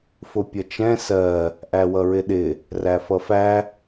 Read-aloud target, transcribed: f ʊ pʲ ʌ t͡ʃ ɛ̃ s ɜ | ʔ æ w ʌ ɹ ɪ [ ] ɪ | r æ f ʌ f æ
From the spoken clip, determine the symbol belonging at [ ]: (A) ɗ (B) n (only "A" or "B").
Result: A